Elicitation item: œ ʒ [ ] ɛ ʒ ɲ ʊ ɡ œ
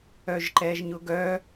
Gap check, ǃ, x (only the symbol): ǃ